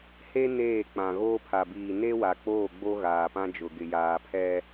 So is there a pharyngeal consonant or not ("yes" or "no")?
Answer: no